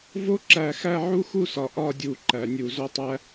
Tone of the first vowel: high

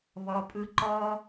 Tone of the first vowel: low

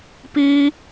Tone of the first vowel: high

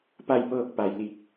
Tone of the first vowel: falling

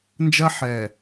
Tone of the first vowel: high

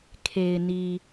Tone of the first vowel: low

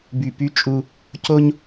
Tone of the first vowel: low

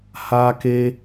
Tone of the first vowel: high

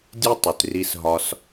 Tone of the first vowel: high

